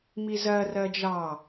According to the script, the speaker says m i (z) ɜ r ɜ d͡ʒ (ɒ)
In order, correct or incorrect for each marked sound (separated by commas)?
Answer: correct, incorrect